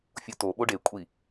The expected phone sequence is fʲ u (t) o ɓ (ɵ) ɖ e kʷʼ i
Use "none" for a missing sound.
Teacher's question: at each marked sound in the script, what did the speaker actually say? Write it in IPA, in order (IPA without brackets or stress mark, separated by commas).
t, o